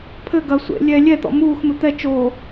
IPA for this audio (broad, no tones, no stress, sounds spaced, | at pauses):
pʰ ɘ ɡ ɐ sʷ ḛ lʲ ɛ lʲ ɛ t̪ ɔ̰ m uː x m ɘ t̪ ɛ t͡ʃ oː